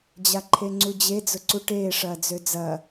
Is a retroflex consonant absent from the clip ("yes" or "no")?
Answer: no